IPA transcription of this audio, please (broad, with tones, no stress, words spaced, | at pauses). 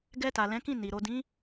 ɡɛ˧ta˨lɛ̃˨˦kĩ˦˨ ni˨ ɾo˨dĩ˨˦